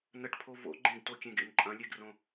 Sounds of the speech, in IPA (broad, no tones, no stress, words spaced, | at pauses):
nəʈpʰo vo̰ ɡ͡ǃẽɡtokʲẽɡḛn ǃʼɐ̃lʲeɡrõ